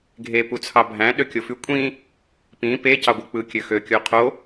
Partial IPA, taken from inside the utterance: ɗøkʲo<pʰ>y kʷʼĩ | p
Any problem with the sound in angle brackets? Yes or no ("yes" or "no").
yes